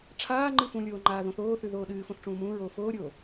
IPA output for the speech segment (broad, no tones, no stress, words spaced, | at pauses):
ʈ͡ʂʰaːŋ͡ǃɨ fũlʲoː ŋ͡ǃaːðõθoːθʉ ðoːɗɨːfõθ ʈ͡ʂũːmũːɹoː foːɾʲoː